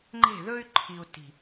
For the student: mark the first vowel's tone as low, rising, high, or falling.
falling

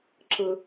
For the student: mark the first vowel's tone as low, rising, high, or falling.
low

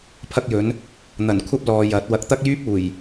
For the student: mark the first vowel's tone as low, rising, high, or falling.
high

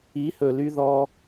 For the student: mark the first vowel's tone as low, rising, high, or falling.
rising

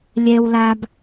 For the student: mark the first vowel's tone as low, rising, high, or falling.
low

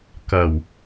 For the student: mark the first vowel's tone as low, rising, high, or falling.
low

